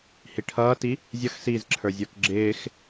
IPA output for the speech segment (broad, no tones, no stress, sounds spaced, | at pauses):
h i ʈʰ ʌː t i | zʲ ʌ x s iː z ǁʰ ə˞ zʲ ə˞ k ɡ͡ǁ ɪː x